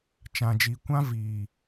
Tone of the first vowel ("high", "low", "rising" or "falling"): low